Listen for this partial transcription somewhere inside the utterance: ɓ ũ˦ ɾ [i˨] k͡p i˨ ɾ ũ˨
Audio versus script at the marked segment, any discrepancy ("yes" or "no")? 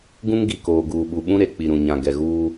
yes